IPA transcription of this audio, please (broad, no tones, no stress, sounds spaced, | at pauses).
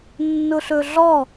nː ʊ ɬ ɵ ɮ ɔ